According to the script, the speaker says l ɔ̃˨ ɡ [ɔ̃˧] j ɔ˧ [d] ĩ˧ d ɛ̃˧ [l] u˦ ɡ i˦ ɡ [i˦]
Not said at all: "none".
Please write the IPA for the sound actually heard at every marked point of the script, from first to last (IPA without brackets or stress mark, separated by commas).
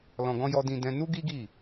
ɔ̃˧, d, n, i˦˨